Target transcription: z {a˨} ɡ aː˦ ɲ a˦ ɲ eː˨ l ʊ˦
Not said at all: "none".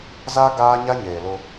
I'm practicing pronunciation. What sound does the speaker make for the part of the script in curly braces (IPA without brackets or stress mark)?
a˦